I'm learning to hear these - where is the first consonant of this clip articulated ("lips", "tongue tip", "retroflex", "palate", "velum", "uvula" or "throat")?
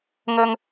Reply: velum